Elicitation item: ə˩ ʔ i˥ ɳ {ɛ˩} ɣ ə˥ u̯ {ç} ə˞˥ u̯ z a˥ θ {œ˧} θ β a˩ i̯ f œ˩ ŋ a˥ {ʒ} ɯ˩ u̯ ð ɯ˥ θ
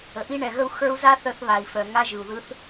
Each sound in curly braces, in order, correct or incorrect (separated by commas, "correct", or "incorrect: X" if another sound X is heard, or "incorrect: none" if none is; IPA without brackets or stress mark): correct, incorrect: x, correct, correct